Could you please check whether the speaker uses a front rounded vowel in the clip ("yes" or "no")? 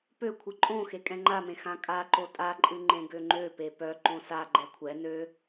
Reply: yes